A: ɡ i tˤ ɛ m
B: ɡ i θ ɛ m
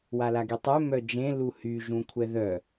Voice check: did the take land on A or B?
A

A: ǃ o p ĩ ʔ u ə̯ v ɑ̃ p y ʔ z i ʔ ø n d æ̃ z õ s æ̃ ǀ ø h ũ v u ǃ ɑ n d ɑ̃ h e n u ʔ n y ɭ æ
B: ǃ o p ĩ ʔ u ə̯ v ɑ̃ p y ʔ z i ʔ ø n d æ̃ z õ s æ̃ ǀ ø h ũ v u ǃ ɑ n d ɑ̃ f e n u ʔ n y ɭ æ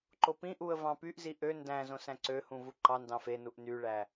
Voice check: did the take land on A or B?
B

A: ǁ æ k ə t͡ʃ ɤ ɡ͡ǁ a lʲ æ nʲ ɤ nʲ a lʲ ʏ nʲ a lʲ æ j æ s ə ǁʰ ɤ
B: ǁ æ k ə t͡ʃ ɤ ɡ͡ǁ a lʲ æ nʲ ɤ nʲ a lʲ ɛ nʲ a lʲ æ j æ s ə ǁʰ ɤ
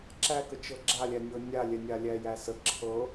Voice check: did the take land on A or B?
B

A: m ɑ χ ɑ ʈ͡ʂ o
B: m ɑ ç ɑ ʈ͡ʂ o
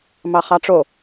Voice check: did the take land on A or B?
A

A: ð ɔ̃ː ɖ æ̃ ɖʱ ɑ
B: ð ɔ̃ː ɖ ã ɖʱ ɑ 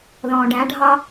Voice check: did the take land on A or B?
A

